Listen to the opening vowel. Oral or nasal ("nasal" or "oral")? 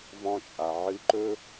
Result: nasal